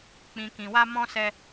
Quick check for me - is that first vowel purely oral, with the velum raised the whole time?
no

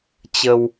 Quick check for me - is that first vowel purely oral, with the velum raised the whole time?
yes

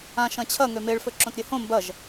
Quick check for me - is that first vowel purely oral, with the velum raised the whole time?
no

